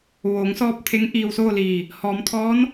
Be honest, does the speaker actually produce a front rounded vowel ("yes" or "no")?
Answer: no